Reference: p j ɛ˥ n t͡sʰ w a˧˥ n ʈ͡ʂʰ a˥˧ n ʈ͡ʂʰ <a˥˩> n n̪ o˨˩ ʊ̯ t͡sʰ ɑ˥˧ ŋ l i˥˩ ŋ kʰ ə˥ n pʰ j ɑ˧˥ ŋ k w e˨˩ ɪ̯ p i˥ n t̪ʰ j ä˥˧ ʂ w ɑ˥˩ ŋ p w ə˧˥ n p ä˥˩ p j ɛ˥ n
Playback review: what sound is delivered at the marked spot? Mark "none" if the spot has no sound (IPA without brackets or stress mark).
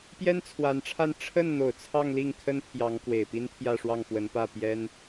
ə˥˩